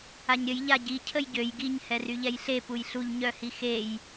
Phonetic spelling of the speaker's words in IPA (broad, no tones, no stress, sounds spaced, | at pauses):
a ɲ ɾʲ ə j ʎ a ɟ i cʰ ə j ɟ ø j ɡ i ɲ h ɛ r y ʎ ɛ j ɬ e p u j ɬ u ʎ ɲ œ h i x e j